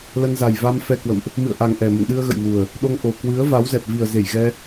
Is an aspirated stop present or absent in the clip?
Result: absent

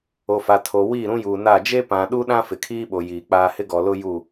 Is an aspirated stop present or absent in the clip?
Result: present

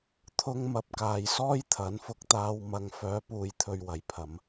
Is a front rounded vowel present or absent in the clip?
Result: present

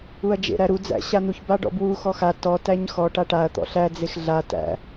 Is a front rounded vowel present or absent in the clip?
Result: absent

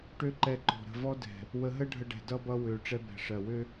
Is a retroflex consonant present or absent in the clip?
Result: present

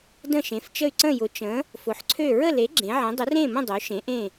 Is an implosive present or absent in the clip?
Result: absent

